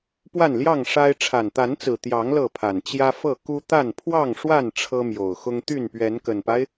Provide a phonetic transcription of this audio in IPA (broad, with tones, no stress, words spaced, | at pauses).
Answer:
pwa˥˨nljɑ˥˨ŋʂa˦ɪ̯ ʈ͡ʂʰa˨˩nt̪a˨˦nt͡sɹ̩˨˩ t̪jɑ˨˦ŋ lɤ˥˨pʰa˨˩n t͡ɕjä˦fɤ˥˨ ku˦t̪a˥˨n pʰwɑ˥˨ŋʂwa˥˨n ʈ͡ʂʰɤ˦mjo˨˩ʊ̯xʊ˦ŋ t̪y˥˨npɥɛ˨˦nkə˨˩npa˦ɪ̯